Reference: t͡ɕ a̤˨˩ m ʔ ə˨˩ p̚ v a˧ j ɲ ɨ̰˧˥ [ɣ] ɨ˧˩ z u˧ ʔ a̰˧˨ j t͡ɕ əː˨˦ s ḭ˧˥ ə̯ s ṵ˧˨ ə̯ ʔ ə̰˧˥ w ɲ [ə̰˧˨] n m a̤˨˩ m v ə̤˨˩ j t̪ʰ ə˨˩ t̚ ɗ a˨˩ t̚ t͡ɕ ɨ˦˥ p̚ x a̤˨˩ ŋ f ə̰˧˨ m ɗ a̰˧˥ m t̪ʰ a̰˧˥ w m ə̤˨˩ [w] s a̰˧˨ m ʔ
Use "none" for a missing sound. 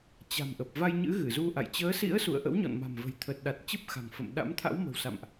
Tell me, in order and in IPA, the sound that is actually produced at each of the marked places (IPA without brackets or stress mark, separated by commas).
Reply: ɣ, ɔ̰˧˨, w